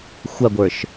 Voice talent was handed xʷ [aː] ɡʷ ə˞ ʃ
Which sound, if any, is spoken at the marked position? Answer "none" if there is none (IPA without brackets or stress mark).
a